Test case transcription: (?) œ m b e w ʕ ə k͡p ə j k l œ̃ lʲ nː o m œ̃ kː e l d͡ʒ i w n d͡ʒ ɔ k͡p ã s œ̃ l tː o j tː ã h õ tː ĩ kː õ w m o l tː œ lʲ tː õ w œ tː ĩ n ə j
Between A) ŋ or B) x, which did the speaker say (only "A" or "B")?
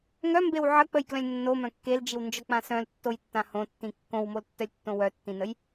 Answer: A